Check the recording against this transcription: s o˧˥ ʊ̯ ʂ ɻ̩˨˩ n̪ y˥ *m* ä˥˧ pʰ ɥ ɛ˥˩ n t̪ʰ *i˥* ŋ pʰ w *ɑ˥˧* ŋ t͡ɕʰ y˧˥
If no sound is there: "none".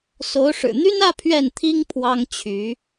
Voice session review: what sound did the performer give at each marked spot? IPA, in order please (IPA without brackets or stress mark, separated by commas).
n, i˥, ɑ˥